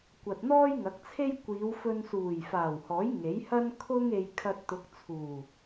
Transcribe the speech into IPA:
kʷɐ˨t̚n̪ɔː˥jŋɐ˨˥k̚t͡sʰe˥j kʷiː˨˧wfɵ˧nsuː˨˩j faː˨˩whɔː˨˥j ŋe˨˥jhɐ˥n kʰʊ˥ŋe˧j kʰɐ˧t̚t̪ʊ˨˥k̚ t͡sʰuː˨˩

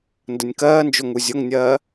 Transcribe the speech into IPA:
ndənʲkɜːnd͡ʒʊ ŋuzʲʊŋnʲɜː

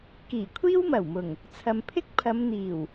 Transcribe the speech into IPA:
kiː˨˩kʷʰiː˥wmɐ˨˩wmʊ˨˩ŋ | t͡sʰɐ˨mpʰɪ˥k̚pʰɐ˨˧m n̪iː˨˩w

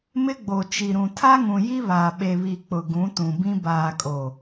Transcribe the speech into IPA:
mɪ˦ɡ͡bo˨ t͡ʃi˨ɾũ˨ tʰa˦ŋũ˨ ji˦βaː˨ ɓe˨βi˨ k͡pʊ˨ɡũ˨˦tũ˨bĩ˦ baː˨kʼo˨

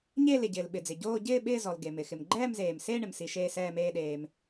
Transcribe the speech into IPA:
ɲe˥˧ lɪ˩ɟɪː˩l ɓɪ˩d͡zɪ˩ ɟoː˥˧ ɟɪː˥˧ ɓɪː˥˧zɔ˩l ɡe˩mɪ˩ xɪ˩mɡ͡ǃɛː˥˧mzeː˩m se˥˧ ɳɪ˩msi˩ ʃeː˥˧sɛː˥˧meː˥˧ɗeː˩m

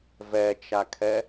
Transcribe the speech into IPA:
vɛt͡ʃakʰɛ

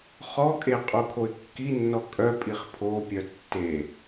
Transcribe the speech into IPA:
χɔkʼe qʼokʰoɪ̯kːinːɔ kʼœpʼiχ pʰopʲœ tːe

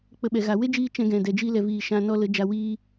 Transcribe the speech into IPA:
k͡pə˧ ɓɛ˨ɣa˨ we˦d͡ʒiː˧ t͡ʃɛ̃˧ɡɛ̃˨ dɛ˨d͡ʒi˧lɛ˨viː˨ ʃã˧ nɔ˦ lə˨˦ d͡ʒa˧wiː˦

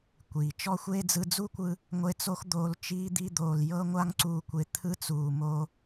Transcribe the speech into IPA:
kʷiː˨t͡ʃɔ˦xʷeː˦ d͡zɯ˧d͡zuː˦kʷɯ˧ | ŋʷe˧t͡so˦xd̪oː˧l t͡ʃiː˦d̪i˦d̪oː˧l jɤ˦ ŋʷa˦ŋǀuː˧kʷe˧ t̪ʰɯ˦t͡suː˧ mo˦

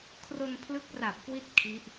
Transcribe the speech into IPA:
kʰro˧npʰlɯ˦˥k̚ra˨˩p̚kwi˦˥t̚ kʰi˦˥ʔ

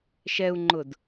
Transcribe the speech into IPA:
ʃɛu̯ŋ͡ǃʊd

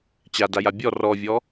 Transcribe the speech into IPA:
t͡ɕadaja bʲɔ rɔvʲɔ

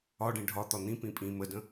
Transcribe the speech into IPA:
ɒɖĩ ɖʱɒt̪ɒ n̪ĩ pĩpʼĩ mədə̃

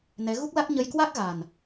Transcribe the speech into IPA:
nɛ˨˦ɣu˦˥k̚la˦˥k̚ ɲə˧jkwa˦˥k̚ɣa˨˩n

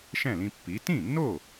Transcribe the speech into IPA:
ʃɛ̃˥˩lĩ˧pːi˩˥ tĩ˥˩nːo˥˩

